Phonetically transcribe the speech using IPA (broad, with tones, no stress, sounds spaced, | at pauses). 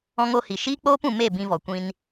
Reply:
ɔ̃˧ ŋ o˧ h i˨ ʃ iː˦ k͡p oː˦ p ũ˨ m e˦˨ b ĩ˧ v ɔ˨ kʷ ĩ˧ n